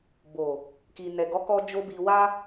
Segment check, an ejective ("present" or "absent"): absent